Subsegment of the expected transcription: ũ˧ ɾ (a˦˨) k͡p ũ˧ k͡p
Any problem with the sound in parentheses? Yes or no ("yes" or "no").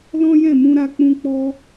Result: yes